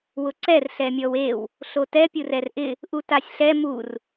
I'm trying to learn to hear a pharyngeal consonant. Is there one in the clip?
no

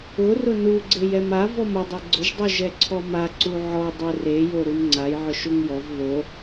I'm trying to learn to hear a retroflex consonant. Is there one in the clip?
no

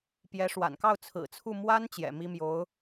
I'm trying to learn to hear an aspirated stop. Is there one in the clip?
yes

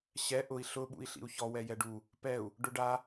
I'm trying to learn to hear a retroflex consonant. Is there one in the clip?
yes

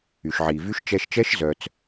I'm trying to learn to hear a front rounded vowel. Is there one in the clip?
yes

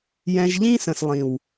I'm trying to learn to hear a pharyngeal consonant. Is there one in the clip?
no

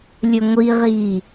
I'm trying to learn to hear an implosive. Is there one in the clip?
no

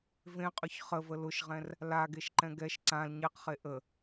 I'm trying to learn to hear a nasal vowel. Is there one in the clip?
yes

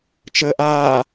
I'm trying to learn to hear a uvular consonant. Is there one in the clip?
no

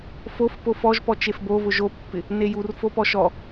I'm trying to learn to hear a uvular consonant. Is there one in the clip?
no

